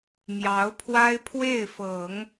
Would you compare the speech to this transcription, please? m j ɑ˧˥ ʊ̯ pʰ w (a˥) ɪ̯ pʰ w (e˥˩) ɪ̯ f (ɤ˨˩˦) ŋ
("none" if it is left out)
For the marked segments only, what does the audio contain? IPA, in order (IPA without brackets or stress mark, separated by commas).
a˥, e˥˩, ɤ˨˩˦